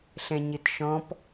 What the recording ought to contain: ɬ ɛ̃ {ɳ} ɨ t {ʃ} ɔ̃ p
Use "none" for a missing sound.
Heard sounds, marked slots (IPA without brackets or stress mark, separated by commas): ɲ, ʃ